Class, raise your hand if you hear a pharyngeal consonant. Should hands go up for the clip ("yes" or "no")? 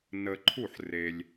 yes